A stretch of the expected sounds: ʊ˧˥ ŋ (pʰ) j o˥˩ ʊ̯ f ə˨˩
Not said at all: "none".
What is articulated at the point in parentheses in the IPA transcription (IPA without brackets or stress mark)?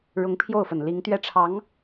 pʰ